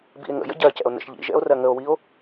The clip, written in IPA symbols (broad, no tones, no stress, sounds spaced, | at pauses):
b ḭ e̯ ŋ ə̰ j ə̰ ɟ ɜ c ɛ̰ o̯ n ə̰ ʃ ʎ ḭ ʒ ɛ̰ o̯ r ɜ ŋ ə o̯ w i o̯